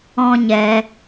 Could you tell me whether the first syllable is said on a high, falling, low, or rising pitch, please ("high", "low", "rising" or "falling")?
high